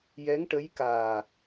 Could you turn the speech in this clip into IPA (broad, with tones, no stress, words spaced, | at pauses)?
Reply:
jɛ˧˥ŋʈə˧˥jkaː˨˩